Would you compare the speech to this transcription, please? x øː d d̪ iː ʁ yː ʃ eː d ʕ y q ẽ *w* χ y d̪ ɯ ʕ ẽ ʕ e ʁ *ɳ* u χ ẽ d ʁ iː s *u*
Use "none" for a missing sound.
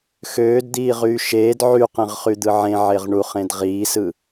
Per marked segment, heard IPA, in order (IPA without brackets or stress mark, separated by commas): ʁ, ɳ, ɯ